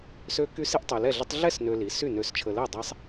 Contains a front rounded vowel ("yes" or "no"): yes